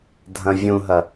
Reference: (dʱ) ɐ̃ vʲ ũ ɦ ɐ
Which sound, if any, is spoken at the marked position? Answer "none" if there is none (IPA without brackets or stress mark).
dʱ